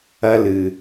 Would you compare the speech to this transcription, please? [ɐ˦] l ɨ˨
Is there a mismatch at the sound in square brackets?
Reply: no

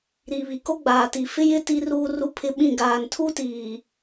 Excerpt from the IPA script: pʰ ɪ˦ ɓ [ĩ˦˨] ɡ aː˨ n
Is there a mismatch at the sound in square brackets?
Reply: no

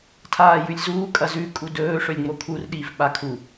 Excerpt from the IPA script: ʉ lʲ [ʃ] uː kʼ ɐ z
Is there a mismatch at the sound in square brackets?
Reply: yes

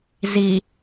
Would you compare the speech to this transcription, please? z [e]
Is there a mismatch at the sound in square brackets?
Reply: yes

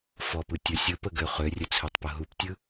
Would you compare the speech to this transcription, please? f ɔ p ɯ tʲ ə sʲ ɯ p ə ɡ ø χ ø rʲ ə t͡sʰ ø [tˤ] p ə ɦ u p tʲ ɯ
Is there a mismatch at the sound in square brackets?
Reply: no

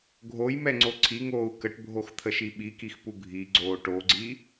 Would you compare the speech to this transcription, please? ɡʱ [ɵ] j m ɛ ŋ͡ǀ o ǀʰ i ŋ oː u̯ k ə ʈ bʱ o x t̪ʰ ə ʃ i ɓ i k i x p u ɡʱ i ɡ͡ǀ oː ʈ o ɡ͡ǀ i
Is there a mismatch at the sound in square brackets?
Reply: yes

